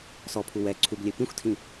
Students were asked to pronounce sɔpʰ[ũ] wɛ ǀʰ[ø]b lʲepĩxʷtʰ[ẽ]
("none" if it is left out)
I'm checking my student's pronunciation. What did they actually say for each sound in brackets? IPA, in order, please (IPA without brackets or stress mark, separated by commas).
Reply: u, u, ĩ